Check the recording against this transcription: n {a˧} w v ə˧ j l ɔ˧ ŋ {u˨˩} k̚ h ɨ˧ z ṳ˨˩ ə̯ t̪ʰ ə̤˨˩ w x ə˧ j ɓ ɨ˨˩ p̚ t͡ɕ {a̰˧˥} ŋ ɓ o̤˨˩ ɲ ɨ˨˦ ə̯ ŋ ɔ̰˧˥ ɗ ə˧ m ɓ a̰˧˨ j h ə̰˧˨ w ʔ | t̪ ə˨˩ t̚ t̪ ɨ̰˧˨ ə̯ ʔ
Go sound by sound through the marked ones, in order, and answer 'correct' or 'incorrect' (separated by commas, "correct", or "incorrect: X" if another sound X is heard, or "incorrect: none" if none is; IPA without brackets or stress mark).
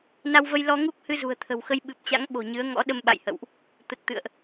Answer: correct, incorrect: u˦˥, correct